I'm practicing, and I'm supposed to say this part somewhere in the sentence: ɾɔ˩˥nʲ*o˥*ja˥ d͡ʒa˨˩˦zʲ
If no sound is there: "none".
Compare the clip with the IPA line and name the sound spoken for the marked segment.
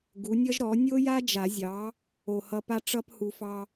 o˥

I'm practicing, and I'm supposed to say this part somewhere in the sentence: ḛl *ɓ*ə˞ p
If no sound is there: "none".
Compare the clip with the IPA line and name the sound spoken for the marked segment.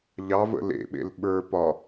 ɓ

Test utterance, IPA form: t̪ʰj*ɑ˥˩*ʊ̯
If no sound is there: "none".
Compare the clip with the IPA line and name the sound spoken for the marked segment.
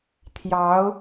ɑ˧˥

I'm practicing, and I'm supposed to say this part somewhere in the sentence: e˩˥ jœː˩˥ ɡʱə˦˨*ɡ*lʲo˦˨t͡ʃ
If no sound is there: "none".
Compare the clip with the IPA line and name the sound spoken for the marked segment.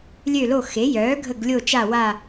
ɡ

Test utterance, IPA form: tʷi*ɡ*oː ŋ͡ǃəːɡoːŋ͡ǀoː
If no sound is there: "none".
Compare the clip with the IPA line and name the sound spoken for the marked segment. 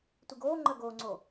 ɡ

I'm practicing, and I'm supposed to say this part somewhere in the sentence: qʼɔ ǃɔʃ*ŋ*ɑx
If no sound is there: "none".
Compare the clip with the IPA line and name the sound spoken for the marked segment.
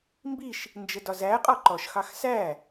x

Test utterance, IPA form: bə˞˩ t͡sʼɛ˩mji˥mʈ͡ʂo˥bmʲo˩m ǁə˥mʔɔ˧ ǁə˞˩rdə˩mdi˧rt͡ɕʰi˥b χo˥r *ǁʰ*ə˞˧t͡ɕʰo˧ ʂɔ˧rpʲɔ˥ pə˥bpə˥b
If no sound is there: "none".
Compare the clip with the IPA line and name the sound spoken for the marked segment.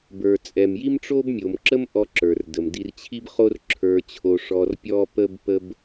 ǁʰ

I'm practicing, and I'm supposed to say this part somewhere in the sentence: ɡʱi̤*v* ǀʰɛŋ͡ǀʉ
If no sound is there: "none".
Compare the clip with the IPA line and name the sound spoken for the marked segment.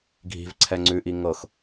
v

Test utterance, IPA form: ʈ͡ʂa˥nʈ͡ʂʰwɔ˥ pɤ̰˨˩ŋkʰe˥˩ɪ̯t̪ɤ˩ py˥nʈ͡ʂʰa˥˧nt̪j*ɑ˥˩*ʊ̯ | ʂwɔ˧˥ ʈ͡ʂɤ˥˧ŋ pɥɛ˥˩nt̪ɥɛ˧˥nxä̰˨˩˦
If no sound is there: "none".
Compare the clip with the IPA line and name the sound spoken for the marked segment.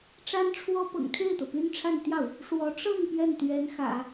ɑ˥˩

